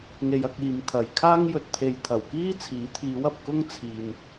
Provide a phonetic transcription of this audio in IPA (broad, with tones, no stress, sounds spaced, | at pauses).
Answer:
ŋ e˧ j ɐ˧ k̚ iː˨ m t̪ʰ ɐ˨ j kʰ aː˥ ŋ j ɵ˨ t̚ t̪ʰ e˨ j t̪ʰ ɐ˨˩ w k iː˥ t͡sʰ iː˨˥ t̪ʰ iː˨˧ w ɐ˨ p̚ k ʊ˥ ŋ t͡sʰ iː˨ n